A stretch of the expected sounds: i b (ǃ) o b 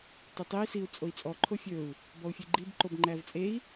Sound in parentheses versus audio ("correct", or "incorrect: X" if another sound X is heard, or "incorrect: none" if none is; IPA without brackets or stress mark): correct